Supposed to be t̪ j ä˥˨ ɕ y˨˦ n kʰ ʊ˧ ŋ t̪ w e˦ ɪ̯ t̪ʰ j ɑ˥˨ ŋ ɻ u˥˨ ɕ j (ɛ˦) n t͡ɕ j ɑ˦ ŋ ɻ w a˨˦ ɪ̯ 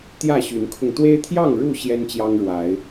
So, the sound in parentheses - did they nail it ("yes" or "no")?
yes